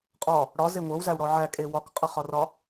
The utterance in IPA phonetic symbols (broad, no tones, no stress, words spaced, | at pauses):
qʼɒ | ɽɒze ŋʷɤwzæwɽɔ ʕækʼe wɒkqʼɤχɒrɒ